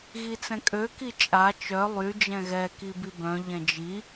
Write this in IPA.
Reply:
ɣ i t͡s ɛ̃ kʼ ø k i t͡ʃʼ a t͡ʃ œ lˠ y d͡ʒ ɛ̃ ɣ ɛ k i b i b œ̃ ʎ ɛ̃ d͡ʒ i

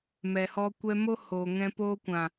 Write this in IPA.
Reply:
m ɛ˨ h ɔ˧ kʷ ɛ˧ m o˦ h oː˨ ŋ ɛ̃˧ p oː˧ kʷ ã˨

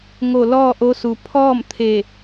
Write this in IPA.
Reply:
ŋ o˧˩ l ɔː˥˨ ʔ o˧˥ s u˩ pʰ ɔː˥˨ m t̪ʰ e˧˩

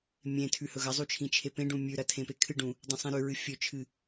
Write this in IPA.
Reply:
mʲ ẽ tʰ ʉ h ɵ ɣ ɐ zˤ u t͡ʃʰ ĩ t͡ʃʰ e p ẽ ɖ ũ mʲ ʉ ɾ ɐ tʰ ẽ p e kʰ ɨ ɖ ũ | dˤ ĩ sˤ ĩ ɾ ʉ ɹ ɨ fʲ ɵ t͡ʃʰ ɨ

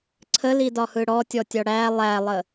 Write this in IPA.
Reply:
ǀʰ ə l i d ɒ h ɯ ɽ ɔ tʲ ɔ tʲ ɒ ɽ æ lˠ æ lˠ ə

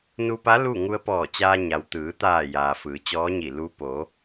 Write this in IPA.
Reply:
n u˧ p a˧˥ l u˥˨ ŋ u˧ ə̯ p ɔː˧˩ t͡ɕ aː˧ ɲ a˩ w t̪ ɯː˩˧ t̪ aː˧˩ j aː˩ f ɯː˩˧ t͡ɕ ɔː˧˥ ɲ i˧˩ l u˧˥ p o˩˧

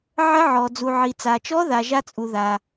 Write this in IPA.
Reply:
ʕ ə˦˥ ʕ ɔ˨ d͡z u˨ ʕ i˨ t͡s a˨ t͡ʃ ɔ˦˥ ð a˨ ʒ a˦˥ t͡sʼ u˨ ð a˨

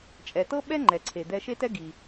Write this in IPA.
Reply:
t͡ʃʼ ɛ˩ t ɤ˥ ɓ ɛ˥ ŋ͡ǃ ɛ˩ ǀʰ e˩ d̪ ɛ˧ ʃ e˥ t ɛ˥ ɡ i˩

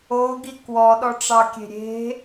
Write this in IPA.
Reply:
o ɡ i k w ɔ ɗ ɔ ʈ͡ʂ ɑ kʲ e̤ ɾʲ e̤

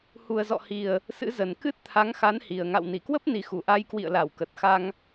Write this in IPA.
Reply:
h u˨˩ ə̯ z ɔ̰˧˨ h i˨˩ ə̯ | s ɨ̰˧˥ z ə˨˩ n k ɨ˦˥ t̚ t̪ʰ a˨˦ ŋ x a˨˦ n h i˨˩ ə̯ ŋ a̰˧˨ w n i˧˩ k w ə˦˥ p̚ n i˨˩ x u˧˩ ʔ a˧ j k w ḭ˧˨ ə̯ l a˧˩ w k ə˨˩ t̚ x a˧ ŋ

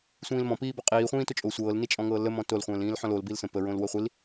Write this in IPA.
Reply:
sʷ ĩː l m ɔ̃ p iː b ɔ qʼ iː χʷ ĩː t o t͡ʃʼ o sʷ ɤː l n i t͡ʃʼ ɔ̃ ŋ ɤː l ə m ɔ̃ t o l χʷ ə̃ː l ĩː l ħ ɔ̃ l o l b i l s ə̃ p ə ɹ õ l w ɤ χʷ i l

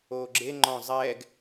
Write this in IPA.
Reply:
oː ɡ͡ǁ e ŋ͡ǃ ɔ̃ zˤ ɛː ɡ

